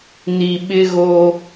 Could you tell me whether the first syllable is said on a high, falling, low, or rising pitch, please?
low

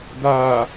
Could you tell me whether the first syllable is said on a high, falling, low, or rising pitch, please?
low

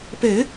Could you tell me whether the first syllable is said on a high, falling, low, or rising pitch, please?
low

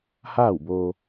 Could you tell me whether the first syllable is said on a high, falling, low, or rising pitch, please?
falling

